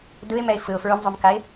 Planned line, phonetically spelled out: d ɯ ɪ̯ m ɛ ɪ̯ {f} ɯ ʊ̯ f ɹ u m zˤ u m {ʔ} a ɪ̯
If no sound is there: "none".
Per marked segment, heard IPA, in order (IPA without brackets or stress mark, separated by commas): f, k